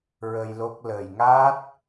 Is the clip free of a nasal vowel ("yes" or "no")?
yes